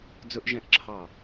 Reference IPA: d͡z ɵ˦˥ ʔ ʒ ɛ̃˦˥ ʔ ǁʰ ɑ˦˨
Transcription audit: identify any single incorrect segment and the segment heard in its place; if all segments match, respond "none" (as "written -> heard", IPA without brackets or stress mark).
none